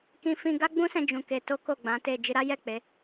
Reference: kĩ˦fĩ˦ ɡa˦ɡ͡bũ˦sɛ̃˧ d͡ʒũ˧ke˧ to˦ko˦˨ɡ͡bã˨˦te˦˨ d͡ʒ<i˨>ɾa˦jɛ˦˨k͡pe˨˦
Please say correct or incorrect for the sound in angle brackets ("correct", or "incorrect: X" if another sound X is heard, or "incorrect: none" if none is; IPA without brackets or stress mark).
incorrect: i˧